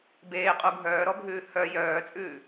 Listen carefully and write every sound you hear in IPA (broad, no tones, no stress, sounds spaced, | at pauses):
b eː qʼ u ɡʱ œː ɾ ɔ bʱ ʉː h œ j œː t͡sʼ ʉː